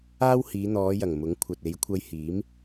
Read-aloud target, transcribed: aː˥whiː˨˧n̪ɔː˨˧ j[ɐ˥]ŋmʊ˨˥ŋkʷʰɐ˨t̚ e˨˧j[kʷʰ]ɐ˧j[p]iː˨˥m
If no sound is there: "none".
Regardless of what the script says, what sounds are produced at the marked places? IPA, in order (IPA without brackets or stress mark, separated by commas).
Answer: ɐ˨˩, kʷʰ, h